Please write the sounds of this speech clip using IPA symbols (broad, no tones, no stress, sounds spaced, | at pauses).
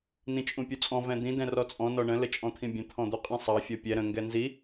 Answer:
n ĩ t͡ʃʼ ũ pʲ u t͡sʼ ɔ̃ v ɛ̃ d̪ ĩ d ɛ̃ r ɔ t͡sʼ ɔ̃ n ɔ ɳ ə̃ l ə t͡ʃʼ ɔ̃ t̪ʰ ĩ bʲ ə̃ t̪ʰ ɔ̃ d̪ u qʼ ĩ sˤ ɑ fʲ ɔ pʲ ɛ ɾ ə̃ ŋ ɡ ɛ n z i